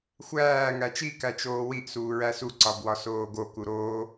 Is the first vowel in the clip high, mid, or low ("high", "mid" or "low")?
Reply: low